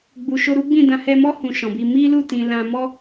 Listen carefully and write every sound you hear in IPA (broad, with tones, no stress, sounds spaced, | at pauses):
ɡ͡b u˨ ʃ o˧ ɾ u˦ ɡ͡b ĩ˦˨ d ã˧ h ɛ˧ m ɔ˦ h ũ˧ ʃ ɔ̃˨ b i˧ m i˦ l u˦˨ t ĩ˨ l ã˧ m ɔ˦